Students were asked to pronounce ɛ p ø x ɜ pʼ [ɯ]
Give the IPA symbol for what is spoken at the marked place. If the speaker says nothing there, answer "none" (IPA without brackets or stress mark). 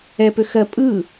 ɯ